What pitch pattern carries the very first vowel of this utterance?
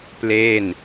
falling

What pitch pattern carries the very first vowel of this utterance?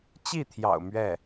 falling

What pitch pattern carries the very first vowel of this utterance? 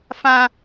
high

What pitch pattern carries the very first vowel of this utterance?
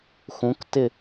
rising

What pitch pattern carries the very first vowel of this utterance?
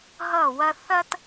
falling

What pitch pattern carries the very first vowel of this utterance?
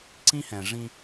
high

